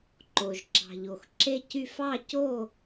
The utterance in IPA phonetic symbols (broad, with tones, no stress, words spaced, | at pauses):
ǃo˩ʒ ǁɑ̤˩ʎo˩x ǁe˥˨cy˥˨f ɑ˥˨co˥˨